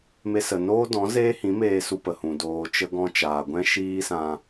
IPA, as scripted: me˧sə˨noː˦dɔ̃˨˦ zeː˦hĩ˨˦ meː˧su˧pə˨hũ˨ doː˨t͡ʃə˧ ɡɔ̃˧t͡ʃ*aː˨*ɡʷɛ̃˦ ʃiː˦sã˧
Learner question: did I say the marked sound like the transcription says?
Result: yes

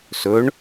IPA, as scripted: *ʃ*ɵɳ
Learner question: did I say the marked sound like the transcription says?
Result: no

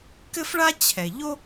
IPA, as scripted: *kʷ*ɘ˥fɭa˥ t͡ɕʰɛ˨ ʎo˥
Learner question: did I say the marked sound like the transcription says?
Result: no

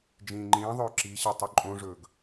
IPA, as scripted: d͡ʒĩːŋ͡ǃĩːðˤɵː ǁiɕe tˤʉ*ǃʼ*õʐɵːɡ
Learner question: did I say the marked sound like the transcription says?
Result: yes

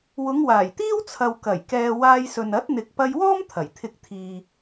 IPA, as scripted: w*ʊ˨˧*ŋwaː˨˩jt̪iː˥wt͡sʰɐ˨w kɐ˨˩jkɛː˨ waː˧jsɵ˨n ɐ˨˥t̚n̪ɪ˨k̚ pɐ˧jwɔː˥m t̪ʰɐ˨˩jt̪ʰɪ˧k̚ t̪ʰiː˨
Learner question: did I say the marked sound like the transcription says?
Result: yes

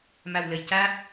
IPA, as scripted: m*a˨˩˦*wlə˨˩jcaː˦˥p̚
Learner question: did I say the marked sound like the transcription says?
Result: no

